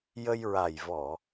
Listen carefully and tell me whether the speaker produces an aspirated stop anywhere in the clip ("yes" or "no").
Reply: no